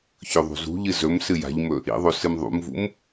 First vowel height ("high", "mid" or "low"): mid